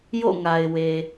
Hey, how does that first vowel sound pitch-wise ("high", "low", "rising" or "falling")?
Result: falling